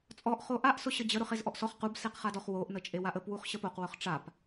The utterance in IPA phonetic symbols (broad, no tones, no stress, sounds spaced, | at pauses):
t͡sʼ ɔ ʔ χ o ʔ a ʔ s ʊ ɕ ə d͡ʑ ə ɾ ʊ χ e z ʔ ɔ ʔ s ɔ χ q u b s e q χ a d ɔ χ w o ʔ n ə t͡ʃʼ e w a ʔ ə p w u χ ɕ ə p o q w ʊ χ ʈ͡ʂ a p